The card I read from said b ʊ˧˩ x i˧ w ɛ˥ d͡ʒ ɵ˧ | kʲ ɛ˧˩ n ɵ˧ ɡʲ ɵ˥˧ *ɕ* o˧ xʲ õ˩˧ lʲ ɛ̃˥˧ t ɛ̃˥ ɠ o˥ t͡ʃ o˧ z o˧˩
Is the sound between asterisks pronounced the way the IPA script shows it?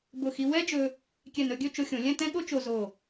no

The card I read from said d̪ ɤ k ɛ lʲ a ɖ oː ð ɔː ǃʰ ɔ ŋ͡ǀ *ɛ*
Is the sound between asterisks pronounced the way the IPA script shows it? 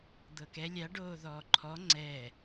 yes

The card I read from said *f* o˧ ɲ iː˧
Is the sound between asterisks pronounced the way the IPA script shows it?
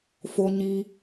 yes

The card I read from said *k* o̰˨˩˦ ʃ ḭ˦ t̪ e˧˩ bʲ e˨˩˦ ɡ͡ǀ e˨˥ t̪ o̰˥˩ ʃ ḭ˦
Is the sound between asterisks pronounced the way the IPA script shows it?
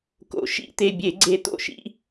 yes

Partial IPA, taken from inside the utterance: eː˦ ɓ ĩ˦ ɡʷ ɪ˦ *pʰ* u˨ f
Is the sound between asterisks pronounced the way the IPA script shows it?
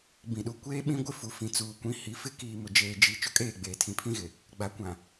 no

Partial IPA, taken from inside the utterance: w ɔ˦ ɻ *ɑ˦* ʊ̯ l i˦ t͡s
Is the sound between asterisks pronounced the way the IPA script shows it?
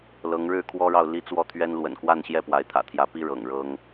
no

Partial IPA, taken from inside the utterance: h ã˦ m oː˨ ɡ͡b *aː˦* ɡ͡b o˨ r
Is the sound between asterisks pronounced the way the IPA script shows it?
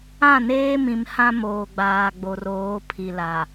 no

